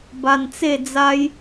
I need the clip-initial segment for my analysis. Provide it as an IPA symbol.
b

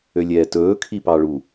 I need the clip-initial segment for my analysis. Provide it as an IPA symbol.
ø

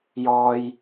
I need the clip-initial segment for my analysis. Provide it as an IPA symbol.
j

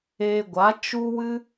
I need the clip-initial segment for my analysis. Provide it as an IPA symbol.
eː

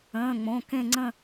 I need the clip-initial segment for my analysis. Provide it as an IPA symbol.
ə̃ː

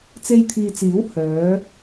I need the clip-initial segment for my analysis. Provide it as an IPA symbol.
t͡s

